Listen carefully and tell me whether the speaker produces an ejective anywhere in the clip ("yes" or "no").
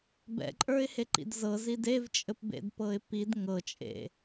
yes